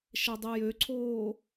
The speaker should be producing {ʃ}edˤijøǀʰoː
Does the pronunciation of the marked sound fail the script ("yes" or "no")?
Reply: no